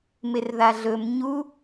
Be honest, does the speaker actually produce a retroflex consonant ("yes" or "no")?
no